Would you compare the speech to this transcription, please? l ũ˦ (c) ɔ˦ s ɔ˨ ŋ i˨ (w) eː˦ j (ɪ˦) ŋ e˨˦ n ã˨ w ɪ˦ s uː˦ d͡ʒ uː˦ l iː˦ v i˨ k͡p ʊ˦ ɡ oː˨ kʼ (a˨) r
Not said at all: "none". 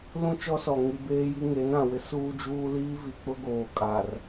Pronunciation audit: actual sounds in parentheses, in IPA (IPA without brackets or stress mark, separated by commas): t͡ʃ, b, i˦, a˨